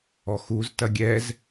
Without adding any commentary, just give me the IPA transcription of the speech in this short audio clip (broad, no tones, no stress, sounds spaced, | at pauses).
ɔ x u z t ɐ ɡʲ ɛ z